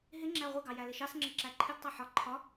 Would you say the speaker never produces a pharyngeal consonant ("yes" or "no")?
no